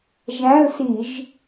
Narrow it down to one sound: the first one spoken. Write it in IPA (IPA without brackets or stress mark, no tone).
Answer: ʒ